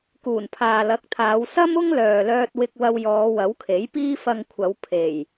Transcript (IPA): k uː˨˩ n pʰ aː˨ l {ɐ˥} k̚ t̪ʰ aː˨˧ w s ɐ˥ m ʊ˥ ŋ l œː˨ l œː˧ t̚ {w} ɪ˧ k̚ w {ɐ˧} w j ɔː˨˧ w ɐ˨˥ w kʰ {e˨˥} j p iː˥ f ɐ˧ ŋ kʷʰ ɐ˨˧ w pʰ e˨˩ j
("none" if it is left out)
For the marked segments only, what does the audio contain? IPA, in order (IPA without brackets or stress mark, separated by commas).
ɐ˨˥, w, ɐ˧, e˨˥